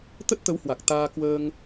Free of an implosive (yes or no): yes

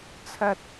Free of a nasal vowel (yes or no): yes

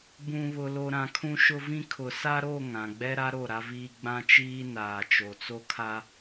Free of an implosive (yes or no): yes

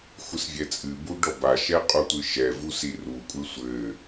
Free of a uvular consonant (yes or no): no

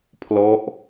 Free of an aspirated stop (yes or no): no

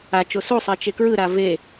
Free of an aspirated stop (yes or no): yes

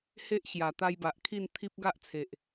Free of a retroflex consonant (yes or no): yes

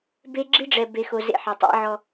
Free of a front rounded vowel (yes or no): yes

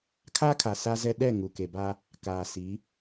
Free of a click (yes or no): yes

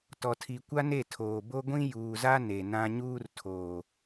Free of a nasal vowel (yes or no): no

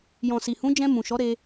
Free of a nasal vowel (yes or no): no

